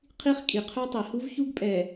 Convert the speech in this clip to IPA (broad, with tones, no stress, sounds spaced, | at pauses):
qʰ i˦ χ kʼ i˨ qʰ œ˦ tˤ i˨ h u˦ v ç u˦ ɡ pʼ ɛ˨